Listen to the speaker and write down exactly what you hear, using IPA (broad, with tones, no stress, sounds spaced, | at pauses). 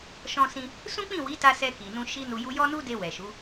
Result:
ʃ ɔ̃˧ s ĩ˧ | s ũ˦ k͡p ĩ˦˨ w i˨˦ t a˧ s ɛ˧ k i˨ n ũ˧ ʃ i˦ n u˧ j u˦ j ɔ˦ n u˦ d e˧ w ɛ˨ ʃ u˨˦